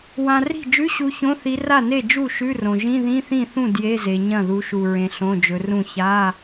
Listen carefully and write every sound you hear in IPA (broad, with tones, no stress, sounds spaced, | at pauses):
w ã˨ r i̤˥˩ d͡ʒ ʉ˧˥˧ ɕ u˨˦ ç õ˧˥˧ θ i˨˦ r a˥˩ n e˥˩ d͡ʒ u˥˩ ʃ ʉ˧˥˧ r õ˨ ʒ ĩ˧˥˧ ð ĩ˧˥˧ θ ĩ˥˩ θ ũ˥˩ d j e˧˥˧ z e˨ ɲ ɐ̃˥˩ ð u˨˦ ʃ u˨ ɹ ẽ˨ ɬ õ˧˥˧ d͡ʒ ɵ˨˦ r ũ˥˩ ç a˧˥˧